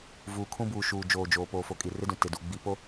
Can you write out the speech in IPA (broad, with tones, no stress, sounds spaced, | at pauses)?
v uː˨ kʰ ũ˦ b uː˨ ʃ uː˨ d͡ʒ oː˨ d͡ʒ oː˨ p oː˨ f o˨ kʼ i˨ r ɪ˦ d ũ˨ t ɪ˨ d u˨ ɡ͡b i˨ p o˦